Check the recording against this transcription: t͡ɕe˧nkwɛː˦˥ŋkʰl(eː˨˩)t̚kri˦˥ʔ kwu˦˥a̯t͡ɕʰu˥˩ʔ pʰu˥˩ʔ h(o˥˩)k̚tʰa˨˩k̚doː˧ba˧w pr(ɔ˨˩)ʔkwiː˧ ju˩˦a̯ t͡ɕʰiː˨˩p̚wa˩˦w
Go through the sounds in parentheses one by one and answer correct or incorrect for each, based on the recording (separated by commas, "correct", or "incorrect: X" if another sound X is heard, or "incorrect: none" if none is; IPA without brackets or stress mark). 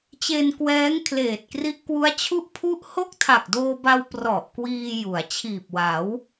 correct, correct, correct